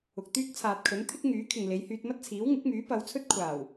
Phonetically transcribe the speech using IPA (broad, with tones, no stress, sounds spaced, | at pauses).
ʊ˨ k̚ t̪ yː˥ k̚ t͡sʰ aː˨ t̚ kʰ ɵ˨˥ n t̪ʰ ɪ˥ k̚ ŋ yː˨˥ kʰ ɪ˨ ŋ l e˨˧ j h yː˧ t̚ m ɐ˥ t̚ t͡sʰ iː˨˥ w ŋ ɪ˨˥ k̚ m yː˨˥ p ɐ˨˧ w t͡sʰ ɵ˥ t̚ kʷʰ aː˨˩ w